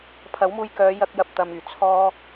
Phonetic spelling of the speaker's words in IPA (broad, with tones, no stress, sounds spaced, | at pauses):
pʰ ɐ˨˥ w m uː˧ j k œː˨˧ j ɐ˧ k̚ j ɐ˨ p̚ t̪ ɐ˨ m yː˨˩ t͡sʰ ɔː˥